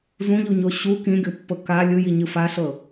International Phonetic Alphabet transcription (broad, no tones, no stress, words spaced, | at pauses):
zũʎuɲo ɕu kĩɡʲopːɤ ka lʲɯjiɲɯ faɬɤ